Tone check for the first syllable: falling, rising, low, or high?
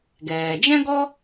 low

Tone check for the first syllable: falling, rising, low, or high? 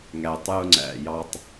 low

